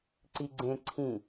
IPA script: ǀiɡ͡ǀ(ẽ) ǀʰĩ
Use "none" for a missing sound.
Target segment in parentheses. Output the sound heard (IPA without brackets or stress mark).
ẽ